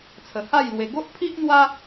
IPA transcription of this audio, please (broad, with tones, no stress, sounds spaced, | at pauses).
t͡sʰ ə˨˩ h a˥˧ j l w e˧ ɡ o˦ ʔ pʰ i˦ ʔ n̪ w a˦